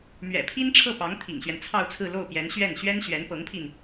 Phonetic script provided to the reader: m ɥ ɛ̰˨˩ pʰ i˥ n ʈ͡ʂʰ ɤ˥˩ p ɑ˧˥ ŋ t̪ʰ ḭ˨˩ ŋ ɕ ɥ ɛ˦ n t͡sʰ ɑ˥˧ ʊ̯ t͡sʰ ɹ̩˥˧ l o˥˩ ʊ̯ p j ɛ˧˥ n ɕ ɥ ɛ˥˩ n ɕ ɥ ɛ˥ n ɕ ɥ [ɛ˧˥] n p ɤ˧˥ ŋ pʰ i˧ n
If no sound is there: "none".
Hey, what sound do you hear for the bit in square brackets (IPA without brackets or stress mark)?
ɛ˧˥